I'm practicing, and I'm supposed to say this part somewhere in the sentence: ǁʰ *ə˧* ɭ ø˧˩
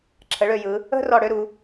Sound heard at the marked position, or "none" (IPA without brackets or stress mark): ə˩˧